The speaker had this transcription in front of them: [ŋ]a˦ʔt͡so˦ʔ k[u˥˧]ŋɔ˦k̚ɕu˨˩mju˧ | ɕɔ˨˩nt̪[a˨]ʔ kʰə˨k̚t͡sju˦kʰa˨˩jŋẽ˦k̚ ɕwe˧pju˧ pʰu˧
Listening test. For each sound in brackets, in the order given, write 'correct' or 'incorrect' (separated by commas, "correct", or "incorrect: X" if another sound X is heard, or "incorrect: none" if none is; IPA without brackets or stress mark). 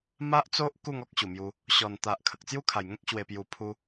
incorrect: m, correct, correct